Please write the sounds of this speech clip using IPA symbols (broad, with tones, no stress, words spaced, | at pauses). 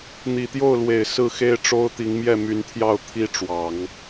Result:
n̪i˨˩t̪jo˥˩ʊ̯lwe˨˩ɪ̯ sɹ̩˥˩xe˥ɪ̯ʈ͡ʂo˥ʊ̯t̪i˧˥ŋ mjɛ˥˩my˧˥nt̪ʰjɑ˥˩ʊ̯ t̪ʰi˥ʈ͡ʂwɑ˨˩˦ŋ